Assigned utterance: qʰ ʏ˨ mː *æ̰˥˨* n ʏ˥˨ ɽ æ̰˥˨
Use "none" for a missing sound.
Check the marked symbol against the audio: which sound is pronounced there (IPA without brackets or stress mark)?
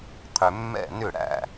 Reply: ɛ̰˥˨